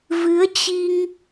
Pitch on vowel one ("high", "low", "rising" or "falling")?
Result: rising